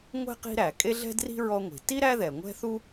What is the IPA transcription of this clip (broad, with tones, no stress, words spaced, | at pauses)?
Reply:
ŋʷɛ̤˥qi̤˦ɾæ˩ kʼe˥ɮɛ̤˥dri̤˥ ɹɔ˦ŋʷi̤˩ ti˥ ɾæ˥ðɛ˩ŋʷɛ̤˥θu˥